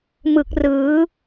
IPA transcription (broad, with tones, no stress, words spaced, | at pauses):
mɯ˨˩k̚rɯː˩˦